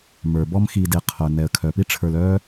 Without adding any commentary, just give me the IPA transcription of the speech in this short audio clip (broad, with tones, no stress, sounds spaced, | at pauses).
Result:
m ə˞˩ b ɔ˦ m x i˨ d e˨ qʰ œ˩ n ɛ˩ ə̯ kʰ œ˩ p i˥ ʈ͡ʂʰ ə˞˨ l œ˥